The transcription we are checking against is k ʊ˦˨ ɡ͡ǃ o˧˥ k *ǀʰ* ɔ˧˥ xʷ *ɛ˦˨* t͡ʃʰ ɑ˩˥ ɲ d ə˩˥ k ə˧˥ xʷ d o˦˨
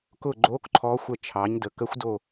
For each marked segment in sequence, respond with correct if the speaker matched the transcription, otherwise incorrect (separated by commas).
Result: incorrect, incorrect